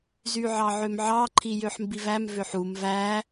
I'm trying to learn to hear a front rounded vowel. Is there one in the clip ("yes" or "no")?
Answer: yes